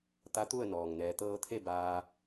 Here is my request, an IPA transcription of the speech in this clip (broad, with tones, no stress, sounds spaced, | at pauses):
t̪ a˧˥ t̪ u˥˨ ə̯ n ɔː˩ ŋ n ɛː˩˧ t̪ ɤː˧ t̪ʰ e˥˨ b aː˧